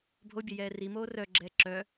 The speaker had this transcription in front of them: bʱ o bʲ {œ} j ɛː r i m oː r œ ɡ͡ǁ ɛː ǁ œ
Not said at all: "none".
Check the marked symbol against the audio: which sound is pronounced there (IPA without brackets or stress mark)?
ɛ